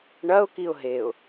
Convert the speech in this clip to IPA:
ɳɐʊ̯ kiʊ̯ɦeʊ̯

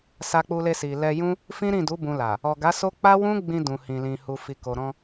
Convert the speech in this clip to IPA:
sa˧k͡pu˧le˧si˨ lɛ˧jũ˦ | fĩ˦ɾĩ˦˨du˨˦ bũ˧la˨ | ɔ˨ɡa˨˦so˦ k͡pa˦wũ˦ɡ͡bĩ˧ dũ˨hĩ˨lĩ˨ hu˨fi˨ko˨ɾɔ̃˧

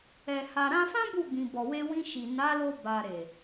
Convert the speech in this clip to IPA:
ɛ˨ha˨ɾã˧fã˦ bu˦˨ɡ͡bĩ˨bɔ˨we˧ wĩ˧ʃi˨ na˨˦lo˧ ba˨ɾe˨

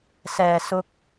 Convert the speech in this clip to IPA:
sɛː˨˩ sʊ˧k̚

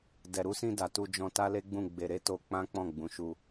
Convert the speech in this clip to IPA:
dɛ˨ɾu˧sĩ˧ da˨ tu˧ d͡ʒɔ̃˧ ta˦le˦ɡ͡bũ˦˨ ɡ͡be˧ ɾe˦to˧k͡pã˦ k͡pɔ̃˦˨ɡ͡bũ˨˦ʃu˧

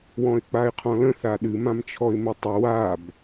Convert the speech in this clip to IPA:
wɔ̃ɪ̯k͡paɪ̯qʰɔ̃lə̃ θaɗɨ mãmt͡ʃʰɔɪ̯mətˤə wab

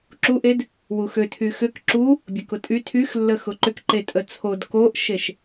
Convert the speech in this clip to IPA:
ǁuʔed | wuxø tʰyxʏk ǁu | bʲəkʊtʼy tʰyxlːə xʊǃʏk ǃetʼət͡sʰod koʔʃeʃ

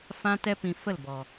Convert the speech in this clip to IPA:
fã˦tɛ˦pĩ˧ fə˦˨lbɔ˨

